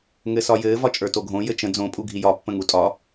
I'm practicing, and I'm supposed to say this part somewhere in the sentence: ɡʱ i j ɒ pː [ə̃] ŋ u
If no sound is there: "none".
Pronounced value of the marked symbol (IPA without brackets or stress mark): ə̃